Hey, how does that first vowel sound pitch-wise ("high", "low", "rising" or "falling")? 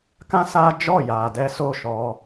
high